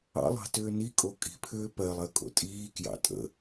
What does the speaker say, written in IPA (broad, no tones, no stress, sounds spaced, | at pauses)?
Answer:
ɑ̰ lˠ ɑ̤ t ʏː n i kʼ o kʼ i̤ pʰ ʏː p ɜ lˠ ɜ kʼ o̰ tʼ iː k j ɑ̰ tʼ ə̰